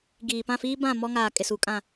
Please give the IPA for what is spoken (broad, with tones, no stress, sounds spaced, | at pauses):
ɡ iː˨ p ã˦˨ f iː˦ b ã˦˨ m ɔ˦ ŋ aː˨ kʼ ɪ˨ s u˨ kʼ ã˨